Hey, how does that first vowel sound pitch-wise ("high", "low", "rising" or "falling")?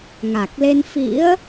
low